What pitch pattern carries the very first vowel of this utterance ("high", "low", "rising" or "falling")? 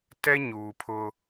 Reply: high